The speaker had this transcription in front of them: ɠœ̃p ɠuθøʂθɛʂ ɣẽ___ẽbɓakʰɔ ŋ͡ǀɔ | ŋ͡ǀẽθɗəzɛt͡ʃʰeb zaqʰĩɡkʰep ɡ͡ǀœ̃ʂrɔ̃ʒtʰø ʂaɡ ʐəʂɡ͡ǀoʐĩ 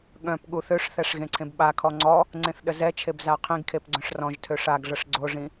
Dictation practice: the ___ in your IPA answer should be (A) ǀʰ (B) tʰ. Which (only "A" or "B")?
A